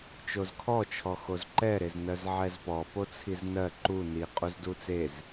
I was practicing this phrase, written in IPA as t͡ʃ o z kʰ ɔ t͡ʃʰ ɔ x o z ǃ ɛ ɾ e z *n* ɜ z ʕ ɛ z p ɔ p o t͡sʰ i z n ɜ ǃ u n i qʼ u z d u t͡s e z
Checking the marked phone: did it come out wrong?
no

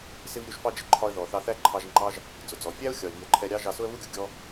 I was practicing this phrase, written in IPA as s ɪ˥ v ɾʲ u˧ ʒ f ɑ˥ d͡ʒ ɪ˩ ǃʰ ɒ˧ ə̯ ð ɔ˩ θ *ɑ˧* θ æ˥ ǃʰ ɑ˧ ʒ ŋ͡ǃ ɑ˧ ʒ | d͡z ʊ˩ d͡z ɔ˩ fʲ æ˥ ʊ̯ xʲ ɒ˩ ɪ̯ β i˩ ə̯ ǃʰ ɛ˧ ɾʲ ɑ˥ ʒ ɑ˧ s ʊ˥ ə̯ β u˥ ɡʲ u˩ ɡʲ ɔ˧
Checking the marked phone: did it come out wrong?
no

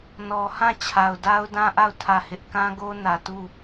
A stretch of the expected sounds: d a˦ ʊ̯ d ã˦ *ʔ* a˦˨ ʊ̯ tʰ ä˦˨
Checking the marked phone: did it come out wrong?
no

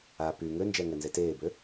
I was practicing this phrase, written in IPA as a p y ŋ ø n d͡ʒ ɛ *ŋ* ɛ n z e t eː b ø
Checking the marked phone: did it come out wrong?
no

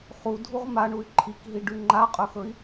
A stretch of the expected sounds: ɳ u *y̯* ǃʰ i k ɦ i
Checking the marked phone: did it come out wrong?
no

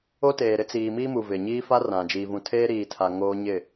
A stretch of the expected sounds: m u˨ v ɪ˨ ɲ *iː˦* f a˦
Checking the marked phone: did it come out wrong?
no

